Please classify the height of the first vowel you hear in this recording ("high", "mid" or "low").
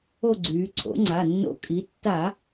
mid